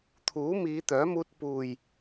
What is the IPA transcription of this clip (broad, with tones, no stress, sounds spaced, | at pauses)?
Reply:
t̪ʰ uː˨˥ m iː˨˧ t̪ œː˨˥ m uː˧ t̚ p uː˨ j